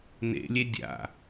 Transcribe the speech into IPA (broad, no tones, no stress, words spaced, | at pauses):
nḛlʲe dʲa̰